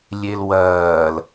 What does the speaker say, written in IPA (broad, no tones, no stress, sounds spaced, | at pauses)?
lʲ e l w ɐː l